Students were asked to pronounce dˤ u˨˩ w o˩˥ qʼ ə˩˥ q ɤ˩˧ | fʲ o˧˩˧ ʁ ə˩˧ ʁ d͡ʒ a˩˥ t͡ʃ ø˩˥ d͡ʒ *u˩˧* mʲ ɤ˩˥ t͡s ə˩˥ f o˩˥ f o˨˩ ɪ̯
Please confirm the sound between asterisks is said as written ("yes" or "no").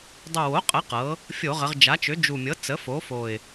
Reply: no